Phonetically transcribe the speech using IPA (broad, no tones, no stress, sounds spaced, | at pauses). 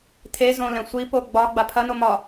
tʰ e z õ l ɛ̃ sʷ i p o ɡ͡b ɒ ɡ͡b a pʰ ɐ n o m ɒ